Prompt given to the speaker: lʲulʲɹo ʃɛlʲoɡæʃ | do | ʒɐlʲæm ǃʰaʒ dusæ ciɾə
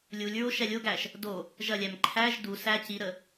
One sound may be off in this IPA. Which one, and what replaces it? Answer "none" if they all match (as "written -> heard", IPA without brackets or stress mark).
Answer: a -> æ